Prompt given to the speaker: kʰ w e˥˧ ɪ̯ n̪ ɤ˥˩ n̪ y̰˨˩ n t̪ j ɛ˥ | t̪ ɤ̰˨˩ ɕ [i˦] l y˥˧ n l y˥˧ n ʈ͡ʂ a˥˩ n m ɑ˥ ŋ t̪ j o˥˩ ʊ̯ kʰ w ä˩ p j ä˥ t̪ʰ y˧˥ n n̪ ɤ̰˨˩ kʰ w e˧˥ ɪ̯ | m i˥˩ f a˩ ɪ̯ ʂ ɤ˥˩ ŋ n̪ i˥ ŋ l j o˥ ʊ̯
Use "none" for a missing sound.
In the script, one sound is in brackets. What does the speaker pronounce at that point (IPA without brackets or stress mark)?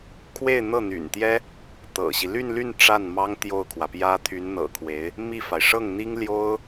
i˦